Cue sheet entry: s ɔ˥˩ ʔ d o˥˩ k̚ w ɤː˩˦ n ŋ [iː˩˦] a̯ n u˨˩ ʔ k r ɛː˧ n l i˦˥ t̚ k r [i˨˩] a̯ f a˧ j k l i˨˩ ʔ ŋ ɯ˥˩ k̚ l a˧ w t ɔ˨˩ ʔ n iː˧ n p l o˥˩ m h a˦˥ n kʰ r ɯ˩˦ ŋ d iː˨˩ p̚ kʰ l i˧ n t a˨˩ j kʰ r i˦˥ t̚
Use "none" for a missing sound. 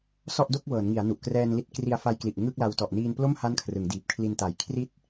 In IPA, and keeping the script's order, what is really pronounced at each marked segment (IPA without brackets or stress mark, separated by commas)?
i˩˦, i˧